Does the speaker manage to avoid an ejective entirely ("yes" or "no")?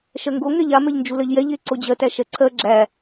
yes